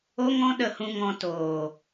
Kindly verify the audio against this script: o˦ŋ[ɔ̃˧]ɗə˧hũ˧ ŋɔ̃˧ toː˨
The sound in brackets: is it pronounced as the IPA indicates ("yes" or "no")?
no